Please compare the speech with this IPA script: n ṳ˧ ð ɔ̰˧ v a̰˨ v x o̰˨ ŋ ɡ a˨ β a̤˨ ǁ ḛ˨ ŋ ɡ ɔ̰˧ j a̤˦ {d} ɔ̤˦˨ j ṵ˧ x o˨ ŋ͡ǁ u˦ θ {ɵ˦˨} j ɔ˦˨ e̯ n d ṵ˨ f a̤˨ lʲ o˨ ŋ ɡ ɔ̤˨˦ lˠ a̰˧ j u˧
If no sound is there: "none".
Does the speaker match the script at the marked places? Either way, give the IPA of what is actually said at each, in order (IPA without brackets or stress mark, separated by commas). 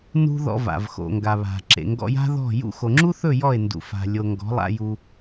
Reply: ð, ɵ˦˨